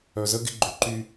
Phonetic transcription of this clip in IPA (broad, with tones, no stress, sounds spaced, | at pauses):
œ˨ z ə˦ ɡ ɪ˦ ɡ͡ǃ ʏ˨ ǃ y˦